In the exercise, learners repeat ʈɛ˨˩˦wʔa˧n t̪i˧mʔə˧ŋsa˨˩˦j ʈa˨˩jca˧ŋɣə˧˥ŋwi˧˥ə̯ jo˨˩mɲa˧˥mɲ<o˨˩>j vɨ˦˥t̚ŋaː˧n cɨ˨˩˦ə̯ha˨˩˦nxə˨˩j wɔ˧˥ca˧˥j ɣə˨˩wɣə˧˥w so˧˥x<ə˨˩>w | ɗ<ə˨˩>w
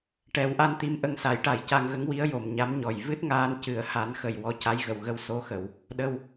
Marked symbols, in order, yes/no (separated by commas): no, no, no